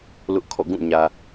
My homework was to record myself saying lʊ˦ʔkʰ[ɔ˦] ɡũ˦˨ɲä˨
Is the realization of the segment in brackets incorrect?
yes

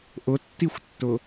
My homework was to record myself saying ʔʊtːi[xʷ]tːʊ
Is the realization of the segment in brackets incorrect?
no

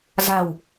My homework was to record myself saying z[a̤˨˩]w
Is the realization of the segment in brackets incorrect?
no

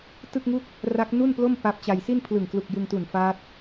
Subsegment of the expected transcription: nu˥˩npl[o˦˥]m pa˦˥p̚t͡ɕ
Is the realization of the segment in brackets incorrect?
yes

